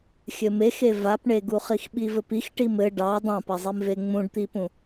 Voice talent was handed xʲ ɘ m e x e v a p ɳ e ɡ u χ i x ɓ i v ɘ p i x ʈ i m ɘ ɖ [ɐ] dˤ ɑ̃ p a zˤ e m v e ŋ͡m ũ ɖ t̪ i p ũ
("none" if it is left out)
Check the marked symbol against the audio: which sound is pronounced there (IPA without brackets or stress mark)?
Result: ɑ